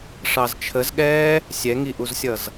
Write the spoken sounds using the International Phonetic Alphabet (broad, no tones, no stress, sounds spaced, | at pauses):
ʂ ɑ z t͡ʃʰ ə z ɠ ɛː | sʲ ɛ ŋ i ʔ u z sʲ ʌ z